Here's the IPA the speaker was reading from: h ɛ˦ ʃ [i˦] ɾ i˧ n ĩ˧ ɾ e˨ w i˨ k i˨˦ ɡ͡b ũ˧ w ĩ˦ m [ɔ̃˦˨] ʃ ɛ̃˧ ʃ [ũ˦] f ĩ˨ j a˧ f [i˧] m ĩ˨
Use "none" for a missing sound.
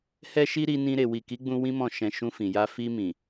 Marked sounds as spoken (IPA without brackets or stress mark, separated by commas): i˦, ɔ̃˦˨, ũ˧, i˧